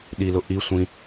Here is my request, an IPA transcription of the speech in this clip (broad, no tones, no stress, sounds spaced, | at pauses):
ɗ i l ʊ ʔ i sʷ ĩ